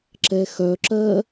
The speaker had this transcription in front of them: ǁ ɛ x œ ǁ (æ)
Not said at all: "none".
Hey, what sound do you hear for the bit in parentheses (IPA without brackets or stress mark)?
ɜ